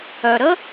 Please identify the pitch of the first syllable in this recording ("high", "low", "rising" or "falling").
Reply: low